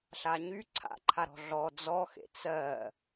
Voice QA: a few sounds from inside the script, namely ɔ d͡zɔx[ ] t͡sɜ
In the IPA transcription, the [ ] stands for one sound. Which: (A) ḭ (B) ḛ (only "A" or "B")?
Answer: B